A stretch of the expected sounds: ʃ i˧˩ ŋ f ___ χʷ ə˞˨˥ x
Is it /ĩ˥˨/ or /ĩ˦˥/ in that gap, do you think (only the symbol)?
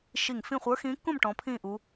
ĩ˥˨